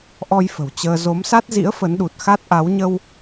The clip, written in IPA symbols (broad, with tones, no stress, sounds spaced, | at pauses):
ʔ ɔ˧ j f ə̤˨˩ w t͡ɕ əː˧ z o˨˦ m s a˦˥ t̚ z ḭ˧˥ ə̯ f ə˨˦ n ɗ u˨˩ t̚ x a˦˥ t̚ ʔ a˨˦ w ɲ ə˧ w